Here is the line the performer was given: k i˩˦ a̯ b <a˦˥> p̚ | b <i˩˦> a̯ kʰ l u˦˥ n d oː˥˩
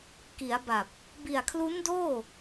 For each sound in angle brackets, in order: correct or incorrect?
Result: incorrect: a˨˩, incorrect: i˨˩

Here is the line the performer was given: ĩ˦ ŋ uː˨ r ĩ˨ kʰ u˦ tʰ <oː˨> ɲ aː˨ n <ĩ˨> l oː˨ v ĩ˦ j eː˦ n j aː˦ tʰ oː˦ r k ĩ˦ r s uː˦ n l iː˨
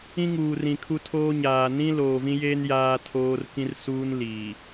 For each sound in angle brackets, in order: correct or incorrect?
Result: incorrect: oː˦, incorrect: ĩ˦

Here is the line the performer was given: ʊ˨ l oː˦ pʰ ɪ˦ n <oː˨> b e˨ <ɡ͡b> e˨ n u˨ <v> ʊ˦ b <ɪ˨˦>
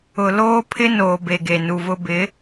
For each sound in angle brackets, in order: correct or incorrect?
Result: correct, incorrect: ɡ, correct, correct

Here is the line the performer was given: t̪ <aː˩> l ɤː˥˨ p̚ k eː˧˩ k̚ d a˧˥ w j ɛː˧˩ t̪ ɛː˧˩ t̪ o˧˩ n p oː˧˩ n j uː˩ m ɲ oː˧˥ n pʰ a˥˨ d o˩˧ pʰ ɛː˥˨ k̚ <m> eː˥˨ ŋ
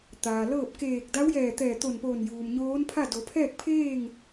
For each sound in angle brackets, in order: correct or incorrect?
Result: correct, incorrect: pʰ

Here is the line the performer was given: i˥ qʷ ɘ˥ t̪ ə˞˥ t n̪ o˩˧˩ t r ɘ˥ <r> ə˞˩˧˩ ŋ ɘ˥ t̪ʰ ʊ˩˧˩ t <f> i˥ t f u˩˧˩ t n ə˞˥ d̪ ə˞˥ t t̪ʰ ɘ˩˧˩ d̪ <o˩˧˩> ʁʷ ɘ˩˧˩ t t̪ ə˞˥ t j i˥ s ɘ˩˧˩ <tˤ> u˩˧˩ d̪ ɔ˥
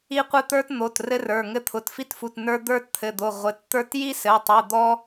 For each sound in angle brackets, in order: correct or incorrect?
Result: correct, correct, correct, correct

